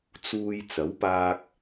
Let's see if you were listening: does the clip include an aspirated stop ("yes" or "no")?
no